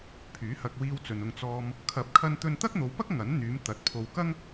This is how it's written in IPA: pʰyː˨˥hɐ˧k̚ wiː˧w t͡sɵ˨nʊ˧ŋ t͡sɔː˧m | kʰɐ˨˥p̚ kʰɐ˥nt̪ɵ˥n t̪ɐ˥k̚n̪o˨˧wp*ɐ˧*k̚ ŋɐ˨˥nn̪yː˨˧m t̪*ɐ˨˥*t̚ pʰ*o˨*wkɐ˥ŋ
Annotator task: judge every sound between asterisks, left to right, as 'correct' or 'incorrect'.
incorrect, correct, correct

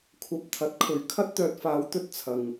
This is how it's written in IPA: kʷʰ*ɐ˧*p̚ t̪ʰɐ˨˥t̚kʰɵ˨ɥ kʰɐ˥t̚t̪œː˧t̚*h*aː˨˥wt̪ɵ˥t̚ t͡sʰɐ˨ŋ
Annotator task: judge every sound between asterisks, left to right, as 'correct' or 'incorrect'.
correct, incorrect

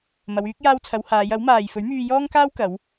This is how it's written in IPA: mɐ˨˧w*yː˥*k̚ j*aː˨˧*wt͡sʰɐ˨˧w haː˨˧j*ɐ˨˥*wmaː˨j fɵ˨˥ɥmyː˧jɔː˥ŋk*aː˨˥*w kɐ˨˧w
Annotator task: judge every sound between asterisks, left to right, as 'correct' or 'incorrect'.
incorrect, incorrect, correct, incorrect

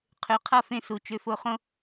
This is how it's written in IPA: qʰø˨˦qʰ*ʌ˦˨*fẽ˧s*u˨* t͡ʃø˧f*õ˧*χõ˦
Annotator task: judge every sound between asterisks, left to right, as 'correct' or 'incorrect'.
correct, correct, incorrect

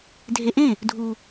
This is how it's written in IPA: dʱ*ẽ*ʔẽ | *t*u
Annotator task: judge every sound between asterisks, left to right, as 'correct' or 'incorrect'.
incorrect, incorrect

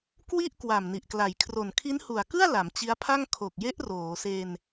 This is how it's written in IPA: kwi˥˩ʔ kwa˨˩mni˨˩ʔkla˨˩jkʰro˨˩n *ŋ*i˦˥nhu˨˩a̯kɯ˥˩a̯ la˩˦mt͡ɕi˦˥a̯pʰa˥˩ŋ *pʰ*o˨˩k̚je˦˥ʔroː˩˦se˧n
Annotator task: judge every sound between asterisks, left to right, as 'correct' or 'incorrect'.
incorrect, incorrect

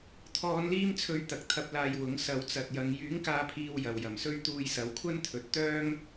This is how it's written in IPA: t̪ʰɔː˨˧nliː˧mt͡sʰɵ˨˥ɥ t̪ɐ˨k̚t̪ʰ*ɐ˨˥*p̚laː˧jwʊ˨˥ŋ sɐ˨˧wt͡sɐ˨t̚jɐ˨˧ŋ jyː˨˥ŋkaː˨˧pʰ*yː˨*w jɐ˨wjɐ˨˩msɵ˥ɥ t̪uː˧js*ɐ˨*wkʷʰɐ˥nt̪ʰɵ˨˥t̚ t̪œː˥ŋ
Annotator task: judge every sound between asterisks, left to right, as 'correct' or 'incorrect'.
incorrect, incorrect, incorrect

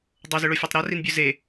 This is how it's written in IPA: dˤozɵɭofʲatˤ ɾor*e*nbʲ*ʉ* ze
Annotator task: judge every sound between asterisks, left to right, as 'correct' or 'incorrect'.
incorrect, correct

